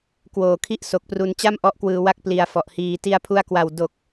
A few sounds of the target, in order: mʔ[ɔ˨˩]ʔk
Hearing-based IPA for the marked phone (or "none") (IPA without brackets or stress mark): ɔ˦˥